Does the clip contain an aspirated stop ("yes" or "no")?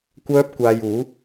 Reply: no